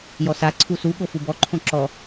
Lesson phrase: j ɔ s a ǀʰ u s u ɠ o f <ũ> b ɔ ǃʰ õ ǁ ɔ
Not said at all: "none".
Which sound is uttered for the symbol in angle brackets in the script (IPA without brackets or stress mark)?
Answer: u